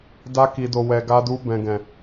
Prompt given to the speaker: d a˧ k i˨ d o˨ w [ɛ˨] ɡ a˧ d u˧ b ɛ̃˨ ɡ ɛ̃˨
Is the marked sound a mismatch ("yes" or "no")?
no